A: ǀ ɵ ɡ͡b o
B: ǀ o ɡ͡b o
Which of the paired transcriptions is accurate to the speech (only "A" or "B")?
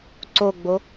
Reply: B